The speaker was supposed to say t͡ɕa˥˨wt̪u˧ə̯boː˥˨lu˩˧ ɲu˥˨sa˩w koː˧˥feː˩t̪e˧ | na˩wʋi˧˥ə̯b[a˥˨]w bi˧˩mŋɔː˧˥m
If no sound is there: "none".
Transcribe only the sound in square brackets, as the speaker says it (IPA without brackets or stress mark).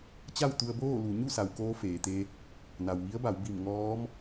a˩˧